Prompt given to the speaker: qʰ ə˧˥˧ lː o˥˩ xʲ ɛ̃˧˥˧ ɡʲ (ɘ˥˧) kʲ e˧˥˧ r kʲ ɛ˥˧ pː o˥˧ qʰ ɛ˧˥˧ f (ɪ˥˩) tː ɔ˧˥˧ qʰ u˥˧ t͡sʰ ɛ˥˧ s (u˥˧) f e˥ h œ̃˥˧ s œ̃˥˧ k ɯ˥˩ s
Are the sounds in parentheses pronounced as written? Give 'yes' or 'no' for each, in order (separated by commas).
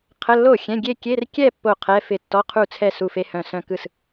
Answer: no, yes, yes